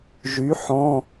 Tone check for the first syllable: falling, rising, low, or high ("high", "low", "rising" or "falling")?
rising